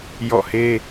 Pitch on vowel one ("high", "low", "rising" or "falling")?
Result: falling